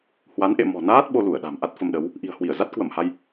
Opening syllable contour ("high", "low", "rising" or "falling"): rising